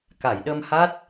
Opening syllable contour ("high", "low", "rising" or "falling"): low